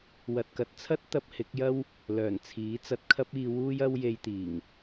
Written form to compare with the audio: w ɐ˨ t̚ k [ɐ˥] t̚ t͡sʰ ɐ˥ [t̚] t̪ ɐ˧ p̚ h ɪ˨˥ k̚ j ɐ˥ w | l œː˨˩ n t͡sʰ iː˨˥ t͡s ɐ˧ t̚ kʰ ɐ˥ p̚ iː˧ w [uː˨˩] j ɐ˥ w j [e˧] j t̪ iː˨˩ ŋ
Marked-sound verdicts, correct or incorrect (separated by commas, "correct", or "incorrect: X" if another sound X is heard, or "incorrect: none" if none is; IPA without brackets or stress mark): incorrect: ɐ˨, correct, incorrect: uː˥, correct